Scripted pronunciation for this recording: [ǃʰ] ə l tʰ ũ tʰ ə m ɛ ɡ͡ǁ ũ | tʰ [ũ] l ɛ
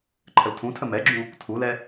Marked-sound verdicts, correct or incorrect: correct, incorrect

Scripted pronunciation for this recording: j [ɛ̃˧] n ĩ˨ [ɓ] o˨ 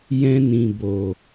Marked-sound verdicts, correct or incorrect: correct, incorrect

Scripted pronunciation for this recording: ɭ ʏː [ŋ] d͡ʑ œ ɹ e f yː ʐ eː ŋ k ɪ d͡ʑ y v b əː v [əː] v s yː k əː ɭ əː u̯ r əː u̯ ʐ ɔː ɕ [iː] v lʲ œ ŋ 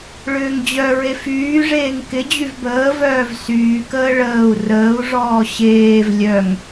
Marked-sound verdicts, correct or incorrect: correct, incorrect, incorrect

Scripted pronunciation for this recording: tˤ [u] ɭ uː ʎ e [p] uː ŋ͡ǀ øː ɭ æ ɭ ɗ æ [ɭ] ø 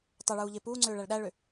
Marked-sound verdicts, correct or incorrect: incorrect, correct, correct

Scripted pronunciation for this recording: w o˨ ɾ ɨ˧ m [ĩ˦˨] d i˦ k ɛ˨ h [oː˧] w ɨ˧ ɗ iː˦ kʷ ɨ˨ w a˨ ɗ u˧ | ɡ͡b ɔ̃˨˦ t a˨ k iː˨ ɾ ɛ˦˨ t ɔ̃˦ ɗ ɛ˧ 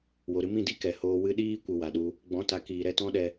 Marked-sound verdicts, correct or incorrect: correct, correct

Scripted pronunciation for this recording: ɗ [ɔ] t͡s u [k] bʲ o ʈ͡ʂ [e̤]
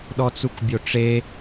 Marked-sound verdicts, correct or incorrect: correct, correct, incorrect

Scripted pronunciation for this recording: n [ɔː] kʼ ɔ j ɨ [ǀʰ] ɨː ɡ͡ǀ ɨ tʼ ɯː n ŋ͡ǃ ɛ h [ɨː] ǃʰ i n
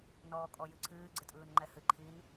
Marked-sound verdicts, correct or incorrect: correct, correct, incorrect

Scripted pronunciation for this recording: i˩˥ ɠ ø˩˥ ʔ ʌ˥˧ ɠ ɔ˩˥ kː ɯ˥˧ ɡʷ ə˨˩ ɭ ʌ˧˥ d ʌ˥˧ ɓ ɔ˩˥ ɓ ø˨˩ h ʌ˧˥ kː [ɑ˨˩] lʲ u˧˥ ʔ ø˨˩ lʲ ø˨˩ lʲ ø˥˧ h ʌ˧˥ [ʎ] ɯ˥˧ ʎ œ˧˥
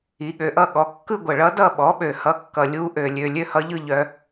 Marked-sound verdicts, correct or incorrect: incorrect, correct

